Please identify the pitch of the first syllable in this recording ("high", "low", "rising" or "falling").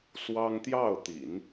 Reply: high